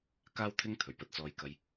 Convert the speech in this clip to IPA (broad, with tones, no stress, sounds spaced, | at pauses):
k aː˥ w t̪ʰ ɪ˥ ŋ t̪ʰ ɵ˨˩ ɥ p ɐ˧ t̚ t͡s ɔː˧ j k ɐ˧ j